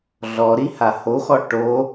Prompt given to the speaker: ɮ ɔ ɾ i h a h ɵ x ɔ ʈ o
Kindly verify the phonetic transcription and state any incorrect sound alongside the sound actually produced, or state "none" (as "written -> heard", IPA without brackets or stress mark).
ɵ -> o